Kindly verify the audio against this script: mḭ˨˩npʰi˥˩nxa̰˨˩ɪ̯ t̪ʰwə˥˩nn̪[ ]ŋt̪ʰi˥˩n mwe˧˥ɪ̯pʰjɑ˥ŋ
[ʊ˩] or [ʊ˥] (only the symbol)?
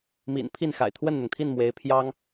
ʊ˩